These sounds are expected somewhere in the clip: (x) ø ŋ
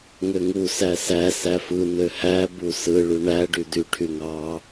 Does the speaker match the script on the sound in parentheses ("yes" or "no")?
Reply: no